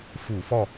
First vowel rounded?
yes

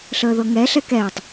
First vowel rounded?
no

